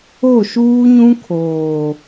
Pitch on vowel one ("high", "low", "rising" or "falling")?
falling